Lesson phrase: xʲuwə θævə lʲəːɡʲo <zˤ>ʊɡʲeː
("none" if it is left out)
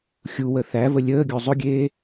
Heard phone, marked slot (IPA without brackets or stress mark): zˤ